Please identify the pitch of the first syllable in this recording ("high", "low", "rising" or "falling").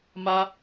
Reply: high